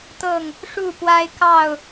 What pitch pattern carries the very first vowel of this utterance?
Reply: falling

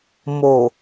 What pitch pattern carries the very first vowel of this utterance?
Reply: low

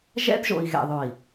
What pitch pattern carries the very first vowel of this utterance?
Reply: high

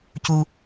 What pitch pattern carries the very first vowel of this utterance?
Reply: high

